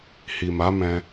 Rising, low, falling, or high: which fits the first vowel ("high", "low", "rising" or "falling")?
low